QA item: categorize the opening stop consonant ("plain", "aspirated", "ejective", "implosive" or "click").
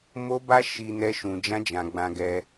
plain